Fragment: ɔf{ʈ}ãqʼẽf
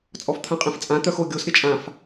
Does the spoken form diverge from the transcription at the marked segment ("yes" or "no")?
yes